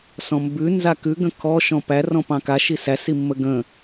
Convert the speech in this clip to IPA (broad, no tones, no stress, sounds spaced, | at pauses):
s ɔ̃ m b ʉ n z a k ʉ ɡ ə̃ kʰ ɔ ʃ ɔ̃ p æ r ɔ̃ p ɑ̃ k a ʃ i s æ s i mː ə ɡ ə̃